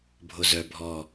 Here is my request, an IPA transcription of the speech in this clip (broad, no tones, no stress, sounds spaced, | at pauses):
bʱ o z œ bʱ ɔ